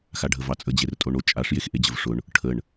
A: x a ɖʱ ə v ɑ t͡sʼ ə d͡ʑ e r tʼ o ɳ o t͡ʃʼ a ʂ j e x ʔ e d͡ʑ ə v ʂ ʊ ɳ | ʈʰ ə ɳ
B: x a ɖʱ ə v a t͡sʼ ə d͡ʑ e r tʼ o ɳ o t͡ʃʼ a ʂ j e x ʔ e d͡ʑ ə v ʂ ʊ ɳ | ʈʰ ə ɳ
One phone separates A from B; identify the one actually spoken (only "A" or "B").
A